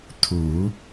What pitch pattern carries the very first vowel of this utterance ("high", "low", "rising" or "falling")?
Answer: low